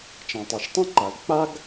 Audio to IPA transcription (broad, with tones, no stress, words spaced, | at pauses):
t͡ʃã˩tˤɛ˩ʃtˤã˥ǃa˩l k͡pa˥ɡ